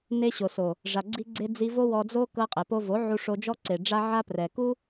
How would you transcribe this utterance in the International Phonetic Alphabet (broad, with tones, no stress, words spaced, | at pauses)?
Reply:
ne˧ɕo˨so˨ | ʐa˧ɡ͡ǀi˦ɡ͡ǀe˦ d͡zi˧ vo˦ wɔ˧d͡zo˦ kɤ˧qʼɛ˨po˧vo˨˦ ʕu˧ʂo˧d͡ʒɔ˦ ǀe˨ɖ͡ʐa˦ ʕa˦ prɛ˨ku˦